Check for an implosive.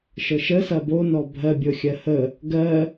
absent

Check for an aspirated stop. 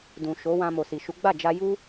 absent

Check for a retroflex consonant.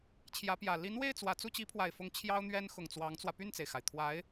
absent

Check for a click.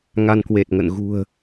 absent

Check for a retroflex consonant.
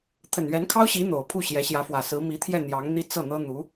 absent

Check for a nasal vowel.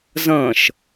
present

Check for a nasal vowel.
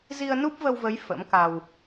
absent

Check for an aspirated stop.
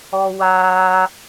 absent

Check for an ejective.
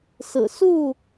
absent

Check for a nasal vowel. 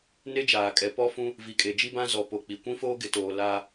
present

